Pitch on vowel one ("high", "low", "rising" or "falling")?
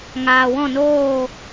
low